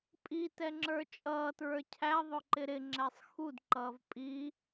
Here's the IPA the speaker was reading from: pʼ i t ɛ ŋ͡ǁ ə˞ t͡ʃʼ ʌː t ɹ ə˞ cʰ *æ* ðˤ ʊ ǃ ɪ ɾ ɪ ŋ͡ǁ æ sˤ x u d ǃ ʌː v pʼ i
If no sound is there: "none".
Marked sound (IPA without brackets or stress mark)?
æ